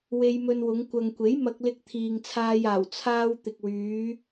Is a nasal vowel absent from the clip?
yes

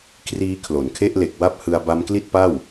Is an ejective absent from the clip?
yes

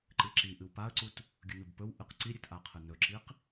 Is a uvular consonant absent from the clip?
no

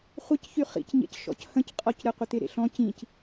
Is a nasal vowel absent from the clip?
no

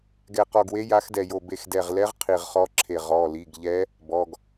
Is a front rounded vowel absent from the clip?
yes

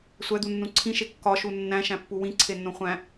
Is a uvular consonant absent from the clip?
no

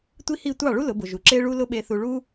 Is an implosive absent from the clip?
no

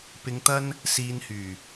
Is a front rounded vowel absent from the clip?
no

